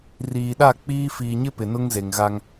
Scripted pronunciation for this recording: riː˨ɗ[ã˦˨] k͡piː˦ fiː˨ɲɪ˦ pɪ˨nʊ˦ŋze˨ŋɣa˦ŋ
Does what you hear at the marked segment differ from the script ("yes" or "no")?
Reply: yes